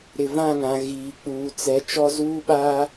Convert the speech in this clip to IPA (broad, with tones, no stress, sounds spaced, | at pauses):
ɾ ɪ˨ v ã˦˨ ŋ ã˨ ɣ iː˨ k͡p uː˨ t͡s ɛ˨˦ t͡ʃ ɔ˦ z uː˦ ɓ a˦